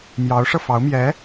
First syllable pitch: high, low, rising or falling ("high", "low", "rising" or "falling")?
rising